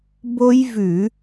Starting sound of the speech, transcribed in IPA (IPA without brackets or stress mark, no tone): b